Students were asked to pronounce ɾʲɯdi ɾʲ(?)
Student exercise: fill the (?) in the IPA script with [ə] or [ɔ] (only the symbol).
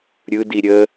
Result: ə